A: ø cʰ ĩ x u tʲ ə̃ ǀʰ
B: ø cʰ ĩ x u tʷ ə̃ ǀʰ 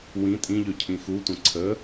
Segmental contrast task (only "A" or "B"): B